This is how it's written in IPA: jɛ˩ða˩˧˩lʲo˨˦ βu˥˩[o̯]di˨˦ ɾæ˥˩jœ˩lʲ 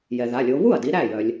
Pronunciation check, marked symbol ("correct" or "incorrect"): incorrect